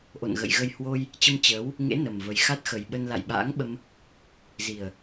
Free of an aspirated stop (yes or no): yes